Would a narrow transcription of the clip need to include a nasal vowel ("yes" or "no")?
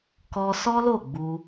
no